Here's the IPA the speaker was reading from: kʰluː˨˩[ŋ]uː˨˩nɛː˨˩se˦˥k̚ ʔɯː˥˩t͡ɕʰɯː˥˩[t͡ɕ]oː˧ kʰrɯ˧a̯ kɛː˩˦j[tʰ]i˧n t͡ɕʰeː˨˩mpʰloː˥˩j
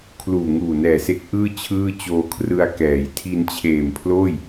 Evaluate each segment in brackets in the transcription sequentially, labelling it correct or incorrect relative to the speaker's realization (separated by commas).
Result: correct, correct, correct